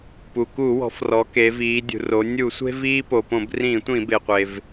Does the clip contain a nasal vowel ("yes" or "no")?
yes